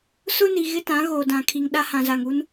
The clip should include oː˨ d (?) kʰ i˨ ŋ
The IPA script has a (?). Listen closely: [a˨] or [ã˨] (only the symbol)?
ã˨